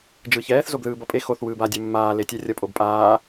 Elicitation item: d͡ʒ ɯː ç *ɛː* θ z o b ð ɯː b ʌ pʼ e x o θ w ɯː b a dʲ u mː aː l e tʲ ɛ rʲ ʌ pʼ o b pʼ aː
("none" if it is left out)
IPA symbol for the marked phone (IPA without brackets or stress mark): ɛː